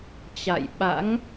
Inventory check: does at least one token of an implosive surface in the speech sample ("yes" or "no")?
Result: yes